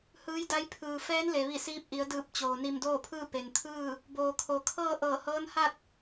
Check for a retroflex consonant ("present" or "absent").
absent